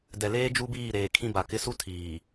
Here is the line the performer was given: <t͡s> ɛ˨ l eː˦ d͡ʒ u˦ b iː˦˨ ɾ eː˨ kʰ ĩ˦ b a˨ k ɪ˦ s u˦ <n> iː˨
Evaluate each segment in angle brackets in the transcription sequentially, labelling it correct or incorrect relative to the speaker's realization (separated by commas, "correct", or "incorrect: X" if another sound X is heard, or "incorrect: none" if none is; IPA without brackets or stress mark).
incorrect: d, incorrect: tʰ